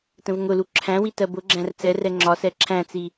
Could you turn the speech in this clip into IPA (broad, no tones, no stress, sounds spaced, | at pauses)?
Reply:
t ə̃ v ŋ ʊ l u ǁʰ æ̃ w i t ɜ b ʊ ɡ͡ǁ æ̃ r t͡s ɛ r ɛ ŋ͡ǁ ɒ s ɛ ǁʰ æ̃ t͡s i